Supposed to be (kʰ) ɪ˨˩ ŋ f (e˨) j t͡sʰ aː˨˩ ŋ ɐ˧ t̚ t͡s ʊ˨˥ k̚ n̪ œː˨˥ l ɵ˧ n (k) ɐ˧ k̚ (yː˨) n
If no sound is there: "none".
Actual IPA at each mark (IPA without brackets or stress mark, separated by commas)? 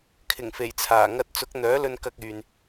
kʰ, e˨˩, k, yː˨